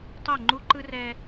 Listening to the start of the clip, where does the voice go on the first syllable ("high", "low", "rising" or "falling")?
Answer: falling